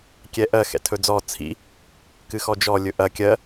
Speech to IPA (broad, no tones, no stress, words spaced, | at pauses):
kʲɛʔɜ xɛ̰tʰɵd͡zɔ t͡sʰḭ | kɨxɔd͡ʒɔ lʲɵʔɐ kʲɜ